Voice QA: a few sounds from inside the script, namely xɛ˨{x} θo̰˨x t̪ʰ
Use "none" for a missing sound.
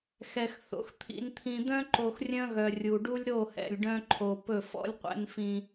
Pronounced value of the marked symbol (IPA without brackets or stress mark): x